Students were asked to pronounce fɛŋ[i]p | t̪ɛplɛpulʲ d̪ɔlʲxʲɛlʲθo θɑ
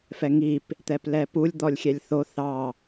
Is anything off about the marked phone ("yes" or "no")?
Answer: no